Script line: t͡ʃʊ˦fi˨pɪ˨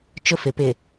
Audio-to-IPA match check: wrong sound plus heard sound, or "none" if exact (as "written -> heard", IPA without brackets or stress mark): i˨ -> ɪ˨